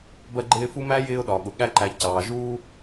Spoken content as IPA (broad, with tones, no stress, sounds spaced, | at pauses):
b ɜ˦ ɡ͡ǃ ɪː˦ f u˥ m æ˥ j ɪː˦ ʊ̯ ɗ ɒ˩ ɠ ʊ˩ ɠ æ˦ ǃ æ˨ c ɑː˩ ʒ uː˥